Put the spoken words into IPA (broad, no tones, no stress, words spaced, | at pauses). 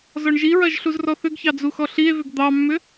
zɔɳʒiɹɐʒ ɬuzrɔθʏɡçɑ d͡zuxɔɬie̯vʏɡ d̪ɑmːʏ